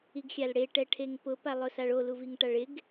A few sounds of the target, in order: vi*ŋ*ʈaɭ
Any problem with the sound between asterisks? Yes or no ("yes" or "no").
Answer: no